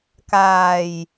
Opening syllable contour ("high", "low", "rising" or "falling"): low